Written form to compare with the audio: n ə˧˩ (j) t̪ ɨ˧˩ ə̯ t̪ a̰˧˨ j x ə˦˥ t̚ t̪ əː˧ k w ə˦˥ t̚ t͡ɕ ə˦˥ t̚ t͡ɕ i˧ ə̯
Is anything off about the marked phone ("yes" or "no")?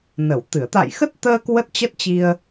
yes